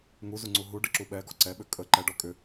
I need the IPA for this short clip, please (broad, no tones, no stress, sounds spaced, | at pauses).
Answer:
ŋ u z u ŋ͡ǀ u ɦ u ɖ ə ǁ u ɓ ɛ ɡ ɔ ǀ ɛ ɓ ʏ kʼ ə ǃ ɛ ɖ ɔ kʼ ʏ